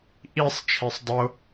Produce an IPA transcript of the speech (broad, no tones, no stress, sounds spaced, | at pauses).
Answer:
ʔ i sˤ t͡ʃʰ e sˤ dˤ o